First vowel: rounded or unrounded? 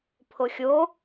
rounded